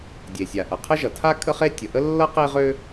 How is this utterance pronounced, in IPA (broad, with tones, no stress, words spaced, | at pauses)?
dʲe˩sʲa˩ʔʌ˩ qʰə˥ʒʌ˩tʰa˥ kʼə˥χe˥ tʲə˩ʔə˥ lːʌ˥qe˥ʁø˥